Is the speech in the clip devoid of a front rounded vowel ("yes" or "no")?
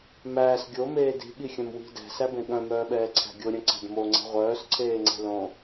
no